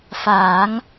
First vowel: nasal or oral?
oral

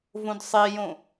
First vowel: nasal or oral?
nasal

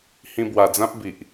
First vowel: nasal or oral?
nasal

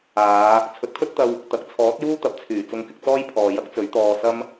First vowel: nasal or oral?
oral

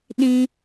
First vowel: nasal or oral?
nasal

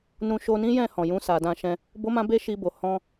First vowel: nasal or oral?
nasal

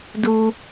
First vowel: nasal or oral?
oral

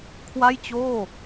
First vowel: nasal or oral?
oral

